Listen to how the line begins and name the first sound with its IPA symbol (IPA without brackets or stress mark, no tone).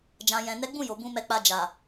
d͡ʒ